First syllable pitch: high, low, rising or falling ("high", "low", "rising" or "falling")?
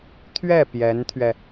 falling